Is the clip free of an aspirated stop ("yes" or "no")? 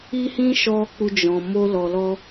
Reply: yes